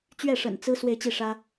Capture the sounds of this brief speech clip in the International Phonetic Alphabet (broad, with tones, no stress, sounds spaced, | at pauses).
t͡ɕ ɥ ɛ˥˩ ʂ ə̰˨˩ n t͡s ɹ̩˥ s w e˥˧ ɪ̯ t͡ɕ i˥˩ ʂ ä˥